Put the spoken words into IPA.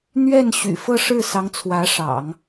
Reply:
n̪ ɥ ɛ˥˩ n ɕ y̰˨˩ f ɤ˥˧ ʂ ɻ̩˥˩ s ɑ˧˥ ŋ t͡sʰ w ä˧˥ ʂ ɑ̰˨˩˦ ŋ

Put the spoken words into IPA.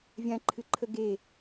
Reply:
vʲ ã ǃʰ ɨ ǃʰ ə ɡ e

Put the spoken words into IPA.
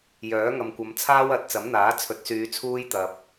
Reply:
j œː˨˥ ŋ ɐ˨ m kʷ ɐ˨˧ m t͡sʰ aː˥ w ɐ˨˥ t̚ t͡s ɐ˨˥ m n̪ aː˨˥ t͡sʰ ɵ˨˥ t̚ s yː˨˧ t͡sʰ uː˥ j t̪ ɐ˨ p̚

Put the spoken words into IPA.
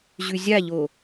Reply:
ʑ ʉ zʲ a ʎ o

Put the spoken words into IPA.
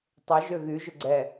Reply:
tˤ ø ʒ ø ɣ y ʒ ʏ ɡ͡ǀ ɛ

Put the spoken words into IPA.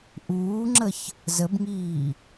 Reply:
ʔ uː ŋ͡ǁ ə ç | z ə b ŋ iː

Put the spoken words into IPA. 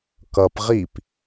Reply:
k ʌ p ʁ i p

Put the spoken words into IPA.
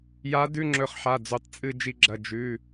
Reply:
j a˧˥ d ʉ˧˥˧ ŋ͡ǁ ɵ˧ χ ħ a˩˧˩ d͡z u˧˩ tˤ t͡sʼ ɨ˥˧ d͡ʒ i˧ ɡ͡ǁ ɐ˩˧˩ d͡ʒ ʉ˩˧˩

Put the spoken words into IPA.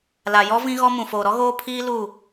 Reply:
l a˨ j ɔ˦ v ĩ˦ ɣ ɔ˦ m ũ˨ f oː˨ ɾ ɔ˦ ɣ oː˦ pʰ iː˦ l u˦˨

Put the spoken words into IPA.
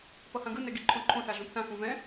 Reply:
p ʌ h ã ɡ ɯ n ɛ ɡ i ǃʰ õ ǃʰ õ θ a ɮ ũ p θ ã x ũ v ɛ̃

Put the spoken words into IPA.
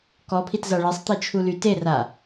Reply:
k ɔ pʰ i t z a ɭ e sˤ t̪ i t͡ʃʰ u l y t e r a

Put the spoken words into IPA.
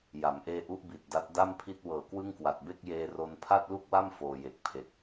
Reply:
j a˩˦ m ʔ eː˧ ʔ u˦˥ ʔ b i˨˩ t̚ d a˦˥ t̚ d a˥˩ m pʰ i˥˩ t̚ w ɤː˨˩ k w ɯ˥˩ ŋ k w a˨˩ t̚ b e˥˩ k̚ j eː˧ r o˧ n pʰ a˥˩ t̚ l u˥˩ k̚ w a˥˩ m f oː˧ j e˨˩ k̚ pʰ e˨˩ k̚

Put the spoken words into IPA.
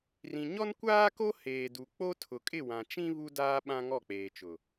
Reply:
r ĩ˨ ɲ ɔ˦ n kʷ aː˦ k o˦ h eː˨ d u˨ k͡p o˦ tʰ ʊ˨ kʼ ɪ˦˨ w ã˨ t͡ʃ ĩ˦ β u˦ d aː˦ ɓ ã˦ ŋ ɔ˦˨ k͡p eː˨ t͡ʃ ʊ˨

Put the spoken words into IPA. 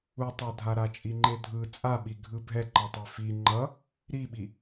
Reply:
u tˤ a dʱ a ɾ a t͡ʃʼ i ŋ͡ǃ e dʱ ɯ t͡sʼ a ɓ i ɡʱ ɯ bʱ ɛ ǃ ʌ tˤ e f i ŋ͡ǃ ʌ | ɾ i ɓ i

